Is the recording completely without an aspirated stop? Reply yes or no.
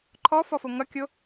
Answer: no